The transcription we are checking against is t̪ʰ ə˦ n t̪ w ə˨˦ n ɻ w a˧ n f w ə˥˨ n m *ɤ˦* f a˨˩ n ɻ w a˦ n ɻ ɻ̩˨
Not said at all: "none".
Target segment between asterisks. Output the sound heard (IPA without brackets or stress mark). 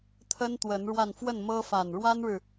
ɤ˦